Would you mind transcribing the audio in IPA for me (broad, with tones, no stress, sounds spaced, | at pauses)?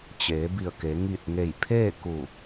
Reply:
t͡ɕ eː˩˧ b i˧˩ ə̯ k e˩˧ ŋ i˧˩ t̚ ŋ e˧˩ j pʰ eː˥˨ k u˧˩